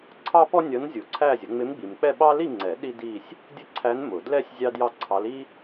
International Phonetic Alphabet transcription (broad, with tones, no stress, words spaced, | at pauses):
ǀʰɑ˥pɔ˥ nʲʌ˧˥n zʲu˨˩˦ǀʰæ˥˧zʲə˩˥ ŋ͡mɪ˧˥mɡ͡bi˨mk͡pɛ˥˧ɓɑ˥ li˥˧ŋ͡ǀɛ˨˩˦ ɗi˥di˥˧sʲ | dʲə˥ǀʰæ˧˥n mʊ˨˩˦ dlɛ˥sʲ zʲɑ˥djɑ˥˧ǀʰɑ˧˥l i˥